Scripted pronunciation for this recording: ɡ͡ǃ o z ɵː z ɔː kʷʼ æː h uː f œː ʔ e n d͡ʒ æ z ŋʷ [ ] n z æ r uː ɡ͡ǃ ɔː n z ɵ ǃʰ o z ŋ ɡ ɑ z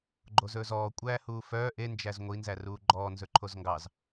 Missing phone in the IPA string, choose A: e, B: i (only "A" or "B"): B